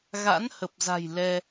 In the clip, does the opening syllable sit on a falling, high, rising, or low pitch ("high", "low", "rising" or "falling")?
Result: rising